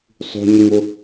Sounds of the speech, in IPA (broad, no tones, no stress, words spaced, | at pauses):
sˤṳɲiŋʊ